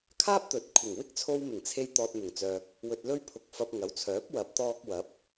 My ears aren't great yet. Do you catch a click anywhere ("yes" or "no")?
no